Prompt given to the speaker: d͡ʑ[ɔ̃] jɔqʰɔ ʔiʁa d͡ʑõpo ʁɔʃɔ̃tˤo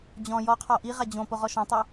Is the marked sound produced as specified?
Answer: yes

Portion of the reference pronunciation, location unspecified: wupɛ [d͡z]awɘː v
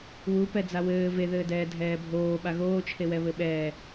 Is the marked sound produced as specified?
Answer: yes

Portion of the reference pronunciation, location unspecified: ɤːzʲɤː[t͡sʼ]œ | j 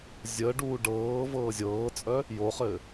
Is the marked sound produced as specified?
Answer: yes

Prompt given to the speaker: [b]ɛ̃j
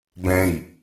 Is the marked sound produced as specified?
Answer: yes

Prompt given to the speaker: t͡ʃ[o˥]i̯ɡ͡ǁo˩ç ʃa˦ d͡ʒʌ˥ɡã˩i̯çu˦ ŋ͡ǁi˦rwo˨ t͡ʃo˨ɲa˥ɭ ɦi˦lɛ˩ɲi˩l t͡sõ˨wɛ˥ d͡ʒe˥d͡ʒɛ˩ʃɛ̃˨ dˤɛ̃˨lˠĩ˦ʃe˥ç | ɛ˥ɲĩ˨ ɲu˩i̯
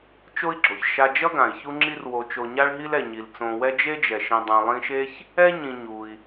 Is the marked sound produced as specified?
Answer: yes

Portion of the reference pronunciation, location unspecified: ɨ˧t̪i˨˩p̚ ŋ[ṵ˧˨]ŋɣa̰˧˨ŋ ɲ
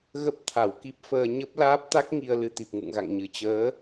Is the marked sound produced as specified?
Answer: yes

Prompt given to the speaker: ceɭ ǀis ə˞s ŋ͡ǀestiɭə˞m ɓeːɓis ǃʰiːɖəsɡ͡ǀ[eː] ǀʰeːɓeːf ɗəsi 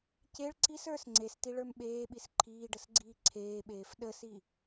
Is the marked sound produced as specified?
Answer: no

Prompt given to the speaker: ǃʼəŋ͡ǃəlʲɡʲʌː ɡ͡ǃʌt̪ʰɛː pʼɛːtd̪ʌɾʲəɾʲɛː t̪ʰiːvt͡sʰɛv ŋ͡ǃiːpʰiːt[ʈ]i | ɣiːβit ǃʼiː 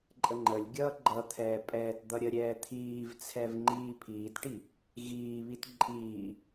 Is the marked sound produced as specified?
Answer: yes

